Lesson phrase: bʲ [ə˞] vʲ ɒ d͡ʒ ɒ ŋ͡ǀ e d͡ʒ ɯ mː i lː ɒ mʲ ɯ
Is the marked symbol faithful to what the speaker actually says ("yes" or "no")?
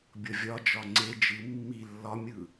no